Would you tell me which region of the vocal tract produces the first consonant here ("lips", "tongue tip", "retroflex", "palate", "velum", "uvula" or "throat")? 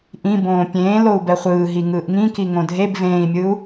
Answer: throat